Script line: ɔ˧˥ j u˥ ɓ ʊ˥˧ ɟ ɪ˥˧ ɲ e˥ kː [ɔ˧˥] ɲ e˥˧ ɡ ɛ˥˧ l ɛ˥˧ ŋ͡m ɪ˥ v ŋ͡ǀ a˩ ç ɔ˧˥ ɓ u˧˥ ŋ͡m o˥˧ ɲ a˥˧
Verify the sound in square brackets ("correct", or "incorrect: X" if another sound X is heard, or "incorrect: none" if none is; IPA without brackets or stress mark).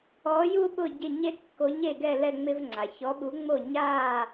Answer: incorrect: o˧˥